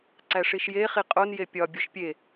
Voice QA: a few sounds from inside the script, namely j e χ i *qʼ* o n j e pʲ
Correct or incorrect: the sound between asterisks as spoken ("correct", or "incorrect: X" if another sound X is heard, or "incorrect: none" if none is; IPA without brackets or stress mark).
correct